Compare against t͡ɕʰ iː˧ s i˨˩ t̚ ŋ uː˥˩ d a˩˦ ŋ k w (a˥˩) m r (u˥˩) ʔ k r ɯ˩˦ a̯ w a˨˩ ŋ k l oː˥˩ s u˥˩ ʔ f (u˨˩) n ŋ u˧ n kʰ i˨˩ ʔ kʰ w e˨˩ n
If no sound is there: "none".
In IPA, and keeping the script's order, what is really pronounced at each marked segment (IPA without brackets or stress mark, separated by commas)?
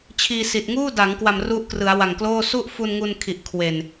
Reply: a˨˩, u˦˥, u˧